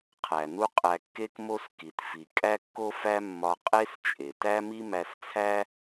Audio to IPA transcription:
qʰ æ˩ n u˥ qʼ æ˧ kː e˥ k m o˥ s k i˩ t f i˩ kʼ æ˥ kː o˥ f æ˥ mː ɒ˧ qʼ e˥ s t͡ʃʼ e˩ t æ˥ m i˥ m æ˧ s t͡sʰ æ˥

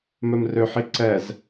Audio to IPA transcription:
m œ m r ø ħ i ǀ ɛ z

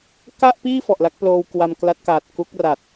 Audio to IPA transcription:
k a˥˩ ʔ p iː˥˩ f ɔ˨˩ ʔ l a˦˥ k̚ p l oː˧ w k w a˧ m k l a˦˥ t̚ k aː˨˩ t̚ k u˦˥ k̚ r a˨˩ t̚

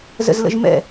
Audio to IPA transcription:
z ə̰ z l ə̰ ʒ m ɛ̰

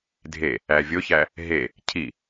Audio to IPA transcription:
dʱ e | æ vʲ o ç æ | ɦ e | cʰ i

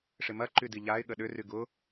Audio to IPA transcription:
ʂ ɪ m ɐ ǃ y d i ʎ a ɪ̯ ɠ ə ɗ ʏ r y ɡ ʊ

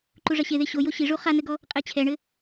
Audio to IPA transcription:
ǃ u ʐ ɐ ɕ e ð e ɕ o j o ɕ i ʐ u χ a n ɘ ɡ ɔ | qʼ e t͡ɕʰ ɛ ɳ ɘ

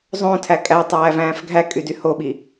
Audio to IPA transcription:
zˤ õ tʰ æ kʼ æ tˤ æː v æ̃ː f ɡʱ æ kʼ y d y h o ɓ i

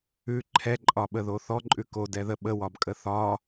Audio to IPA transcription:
ʉ ǃʰ ɛ ǃʼ ɒ ɓ ə ð o θ ɔ ǃʼ ʉ k o d ɛ ð ə ɓ ə w ɒ b kʼ ə θ ɒ

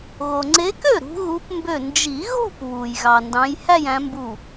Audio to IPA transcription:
ɣ o˩ ŋ͡ǀ e˨˦ k ø˥˩ ɾ ṳ˨˦ ɣ u˨˦ p m b ø˧˩ n d͡ʒ i˨˩˦ ɣ o̤˥˧ p β u˩ j ɣ ɑ˩ n d ɑ̃˨˦ j h æ˥˧ j æ̃˨˦ m b u˧˩

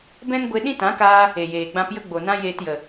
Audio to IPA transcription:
b ɛ̃˦ n ɡʷ e˧ ɗ ĩ˦ t ã˨˦ k aː˧ | e˨ j eː˨ ɡ͡b ã˧ p j ə˦ ɡ͡b o˨ n ã˦ j eː˧ t j ə˨

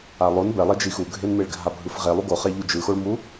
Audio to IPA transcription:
a lˠ o n b ɛ lˠ e d͡ʒ i x u ɡʱ e n m e ɭ ɡʱ a bʱ ɯ f ʁ e lˠ u ɡ o χ ɛ ʎ u d͡ʒ ɯ x o ɭ m u

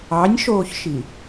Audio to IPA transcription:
ɑ nʲ ʃ oː ç ʃ i

